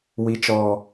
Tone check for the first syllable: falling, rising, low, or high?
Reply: low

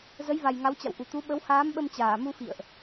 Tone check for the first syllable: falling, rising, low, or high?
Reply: rising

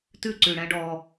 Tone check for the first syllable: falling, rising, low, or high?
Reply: falling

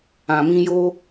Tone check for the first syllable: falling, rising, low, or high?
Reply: low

